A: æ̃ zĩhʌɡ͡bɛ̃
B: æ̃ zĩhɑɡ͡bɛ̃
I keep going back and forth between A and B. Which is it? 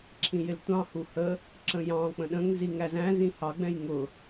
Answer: B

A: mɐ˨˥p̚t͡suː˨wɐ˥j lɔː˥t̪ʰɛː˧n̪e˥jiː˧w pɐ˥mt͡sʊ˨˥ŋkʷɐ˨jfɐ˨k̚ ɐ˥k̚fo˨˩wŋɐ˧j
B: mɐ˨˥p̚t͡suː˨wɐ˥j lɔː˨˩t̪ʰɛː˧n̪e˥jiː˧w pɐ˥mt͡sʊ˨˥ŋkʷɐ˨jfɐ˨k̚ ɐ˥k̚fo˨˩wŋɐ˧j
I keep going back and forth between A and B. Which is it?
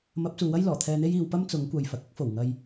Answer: B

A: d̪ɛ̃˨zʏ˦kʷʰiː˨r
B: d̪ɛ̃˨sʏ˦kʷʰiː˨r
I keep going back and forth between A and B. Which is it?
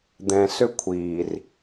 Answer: B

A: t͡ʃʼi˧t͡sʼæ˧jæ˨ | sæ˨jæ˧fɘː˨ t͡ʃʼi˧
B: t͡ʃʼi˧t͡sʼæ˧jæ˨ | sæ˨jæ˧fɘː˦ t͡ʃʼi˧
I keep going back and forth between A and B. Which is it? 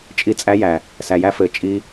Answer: A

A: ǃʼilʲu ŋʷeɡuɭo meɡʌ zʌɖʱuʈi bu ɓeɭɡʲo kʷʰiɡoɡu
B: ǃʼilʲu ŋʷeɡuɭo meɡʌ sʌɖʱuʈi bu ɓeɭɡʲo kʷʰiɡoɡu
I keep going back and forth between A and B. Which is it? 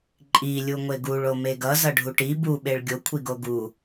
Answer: A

